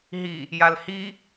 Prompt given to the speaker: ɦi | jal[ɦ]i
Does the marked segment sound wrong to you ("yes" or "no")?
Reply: yes